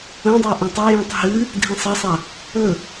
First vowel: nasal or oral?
nasal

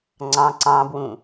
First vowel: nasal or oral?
nasal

